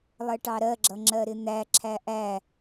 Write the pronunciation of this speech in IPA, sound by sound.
lˠ ɜ ʈ ɑ ɾ ɜ ɡ͡ǁ ʌ ŋ͡ǁ ɜ ɾ ɪ n̪ æ ǁʰ æ ʔ æ

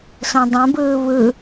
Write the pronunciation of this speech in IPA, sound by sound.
s õ dˤ õ b ɯː β ɯ

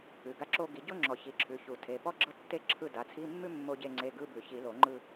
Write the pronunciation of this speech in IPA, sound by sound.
ʉ˩˧˩ ɡ a˥˧ ǁ o˥ ɡ i˨˩˦ ɟ o˥ ŋ͡ǁ ɔ˨˩˦ ç i˩˧˩ ǁʰ ʉ˩˧˩ ç u˨˩˦ tʰ e˩˧˩ p ɔ˥ ɡ͡ǁ ɤ˥˧ tː e˥˧ ǁʰ ɯ˥˧ d a˩˧˩ t͡sʰ i˧˥˧ mː ʉ˥ mː o˥ ɟ e˥˧ ŋ͡ǀ e˧˥˧ ɡ ɯ˧˥˧ b ʉ˨˩˦ ç i˨˩˦ l o˨˩˦ ŋ͡ǃ ɯ˥˧

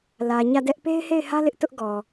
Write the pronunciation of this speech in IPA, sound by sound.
l ä˨ ɲ ä˦˨ d ɛ˦ ʔ p e˦ ɪ̯ h e˦˨ ɪ̯ h ä˦ l ɪ˦ ʔ t ʊ˦ ʔ ɡ ɔ˨

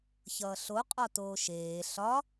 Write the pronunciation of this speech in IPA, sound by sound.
ç ʌː ɬ o qʼ ɒ t oː ʃ eː ɬ ɒ

